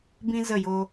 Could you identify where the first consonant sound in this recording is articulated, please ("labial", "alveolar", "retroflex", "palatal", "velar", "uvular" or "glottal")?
labial